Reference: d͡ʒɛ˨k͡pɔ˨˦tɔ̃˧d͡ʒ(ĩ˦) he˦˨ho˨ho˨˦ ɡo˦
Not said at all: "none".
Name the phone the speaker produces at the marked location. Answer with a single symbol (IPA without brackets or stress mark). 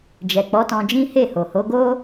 ĩ˦